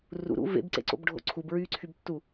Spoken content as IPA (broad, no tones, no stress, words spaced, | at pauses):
rṵɾṵ vḛbǀḛǀo̰bɖʱo̰ ǀʰubɹyːǀʰybtːu